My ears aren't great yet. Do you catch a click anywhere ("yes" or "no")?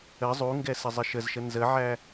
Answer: no